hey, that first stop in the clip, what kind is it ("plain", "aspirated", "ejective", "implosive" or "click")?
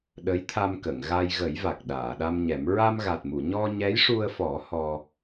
implosive